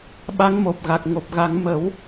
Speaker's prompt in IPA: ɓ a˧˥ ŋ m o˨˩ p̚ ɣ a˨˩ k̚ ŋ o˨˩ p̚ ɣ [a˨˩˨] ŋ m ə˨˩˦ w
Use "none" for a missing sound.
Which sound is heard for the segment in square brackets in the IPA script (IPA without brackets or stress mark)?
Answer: a˨˩˦